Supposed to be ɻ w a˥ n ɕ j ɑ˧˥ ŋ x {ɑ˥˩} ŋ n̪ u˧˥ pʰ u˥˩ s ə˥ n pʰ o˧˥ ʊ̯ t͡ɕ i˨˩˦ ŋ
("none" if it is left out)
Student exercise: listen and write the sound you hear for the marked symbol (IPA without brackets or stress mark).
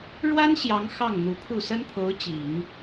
ɑ˥˩